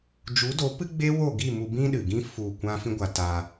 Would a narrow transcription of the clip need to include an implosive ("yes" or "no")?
yes